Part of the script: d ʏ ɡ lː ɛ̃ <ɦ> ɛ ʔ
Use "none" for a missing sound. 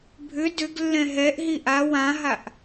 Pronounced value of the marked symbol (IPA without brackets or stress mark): ɦ